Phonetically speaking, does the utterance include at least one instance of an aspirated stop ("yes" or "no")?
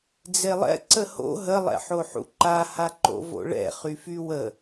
no